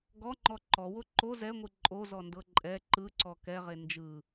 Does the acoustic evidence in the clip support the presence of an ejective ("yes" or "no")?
yes